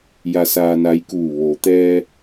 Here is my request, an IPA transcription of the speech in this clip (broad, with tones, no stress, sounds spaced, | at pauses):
j a˧ s aː˧ n a˧˥ j k uː˧˩ ʋ o˩ t̪ ɛː˧